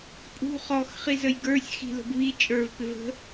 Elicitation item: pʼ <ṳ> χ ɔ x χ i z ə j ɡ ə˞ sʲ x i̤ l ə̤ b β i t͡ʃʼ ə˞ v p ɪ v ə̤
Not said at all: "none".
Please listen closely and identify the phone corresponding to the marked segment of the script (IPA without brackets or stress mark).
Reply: ṳ